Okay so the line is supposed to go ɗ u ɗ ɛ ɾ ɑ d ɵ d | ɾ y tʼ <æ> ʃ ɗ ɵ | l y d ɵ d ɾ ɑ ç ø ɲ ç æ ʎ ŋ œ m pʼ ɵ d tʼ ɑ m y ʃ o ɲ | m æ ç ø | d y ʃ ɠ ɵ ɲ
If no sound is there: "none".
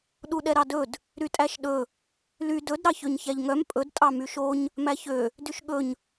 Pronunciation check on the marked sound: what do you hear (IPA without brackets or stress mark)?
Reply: æ